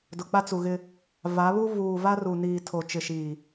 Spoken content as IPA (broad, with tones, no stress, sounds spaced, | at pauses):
d ʊ˨ k͡p a˦ t͡s u˨ ɣ ɪ˦ | v a˨˦ β u˦ v uː˨ v a˦ r u˨ n iː˨ tʰ o˨ t͡ʃ ɪ˨ ʃ iː˨